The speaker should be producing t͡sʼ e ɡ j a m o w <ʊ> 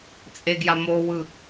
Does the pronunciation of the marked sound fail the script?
yes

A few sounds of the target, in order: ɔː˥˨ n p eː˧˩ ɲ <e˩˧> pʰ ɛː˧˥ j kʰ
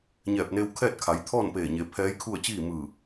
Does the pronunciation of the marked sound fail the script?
no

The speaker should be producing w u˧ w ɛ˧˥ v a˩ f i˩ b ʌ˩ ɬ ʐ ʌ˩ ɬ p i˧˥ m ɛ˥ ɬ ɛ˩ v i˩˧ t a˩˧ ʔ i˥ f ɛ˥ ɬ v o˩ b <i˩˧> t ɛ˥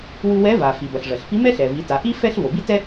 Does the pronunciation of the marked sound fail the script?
yes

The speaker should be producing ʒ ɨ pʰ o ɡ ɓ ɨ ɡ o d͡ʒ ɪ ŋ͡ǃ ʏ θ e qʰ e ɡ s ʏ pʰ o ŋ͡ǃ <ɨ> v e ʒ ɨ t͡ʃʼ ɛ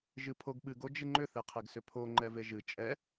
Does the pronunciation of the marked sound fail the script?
yes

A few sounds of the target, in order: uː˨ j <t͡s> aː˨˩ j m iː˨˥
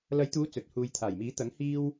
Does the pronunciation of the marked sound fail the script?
yes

